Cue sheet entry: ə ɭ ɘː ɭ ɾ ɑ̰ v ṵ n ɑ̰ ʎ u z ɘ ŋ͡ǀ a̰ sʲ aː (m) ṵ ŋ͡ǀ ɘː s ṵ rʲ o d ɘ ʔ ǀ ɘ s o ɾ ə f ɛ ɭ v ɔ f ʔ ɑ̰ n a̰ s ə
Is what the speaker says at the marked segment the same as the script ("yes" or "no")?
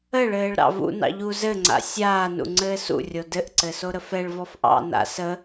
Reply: no